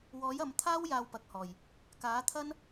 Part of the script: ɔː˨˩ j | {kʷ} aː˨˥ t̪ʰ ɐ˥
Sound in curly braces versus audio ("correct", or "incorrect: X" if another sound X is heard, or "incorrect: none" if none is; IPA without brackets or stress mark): incorrect: k